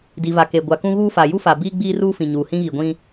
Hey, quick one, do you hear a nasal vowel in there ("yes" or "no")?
yes